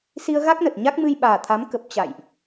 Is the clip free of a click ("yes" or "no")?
yes